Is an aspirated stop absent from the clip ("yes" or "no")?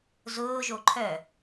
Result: no